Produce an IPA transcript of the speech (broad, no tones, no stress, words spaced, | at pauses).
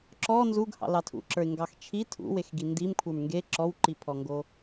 ǁɔ nzuɡhɑ̰ lɑtʰṵǁə˞ɪ̯ ŋɡɑxt͡ʃʰi tʰṵwexɡi ndimkʷʰə˞m ŋɡe ǁɔwǃipʰɔŋɡo